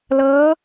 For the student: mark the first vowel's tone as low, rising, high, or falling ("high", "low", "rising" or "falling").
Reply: rising